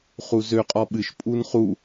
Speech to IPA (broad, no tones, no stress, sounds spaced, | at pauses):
χ u z ø qʼ ɔ ɓ ɨ ʃ pʼ u n χ u